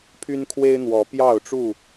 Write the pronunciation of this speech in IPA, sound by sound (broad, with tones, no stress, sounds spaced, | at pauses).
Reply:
pʰ y˦ n kʰ w e˦ ɪ̯ n̪ w ɔ˨˦ p j ɑ˥˨ ʊ̯ ʈ͡ʂ u˥˨